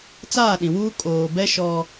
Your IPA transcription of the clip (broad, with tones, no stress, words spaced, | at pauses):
t͡saː˦˨ɗĩ˨wuː˦ kʼoː˨bɛ˦ ʃɔ˦